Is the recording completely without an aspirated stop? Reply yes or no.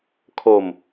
no